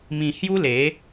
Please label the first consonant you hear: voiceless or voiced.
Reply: voiced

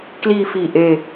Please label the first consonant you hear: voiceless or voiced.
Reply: voiceless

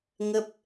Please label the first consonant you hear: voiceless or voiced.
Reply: voiced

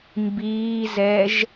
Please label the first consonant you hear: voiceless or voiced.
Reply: voiced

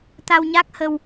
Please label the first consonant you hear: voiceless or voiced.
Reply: voiceless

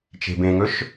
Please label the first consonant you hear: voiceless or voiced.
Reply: voiceless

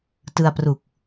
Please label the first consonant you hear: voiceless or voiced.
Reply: voiceless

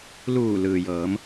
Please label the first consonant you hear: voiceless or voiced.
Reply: voiced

